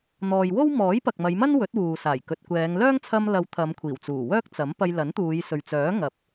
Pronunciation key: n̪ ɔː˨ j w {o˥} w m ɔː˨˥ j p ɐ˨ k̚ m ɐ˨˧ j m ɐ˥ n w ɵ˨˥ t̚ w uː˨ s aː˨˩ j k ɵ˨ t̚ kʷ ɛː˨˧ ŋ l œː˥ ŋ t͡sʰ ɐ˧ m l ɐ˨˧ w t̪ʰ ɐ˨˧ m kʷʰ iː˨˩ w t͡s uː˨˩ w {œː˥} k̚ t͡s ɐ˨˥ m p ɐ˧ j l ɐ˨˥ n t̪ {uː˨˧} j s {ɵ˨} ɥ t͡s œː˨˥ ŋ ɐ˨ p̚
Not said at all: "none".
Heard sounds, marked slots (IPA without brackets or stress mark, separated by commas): o˥, œː˥, uː˨˧, ɵ˨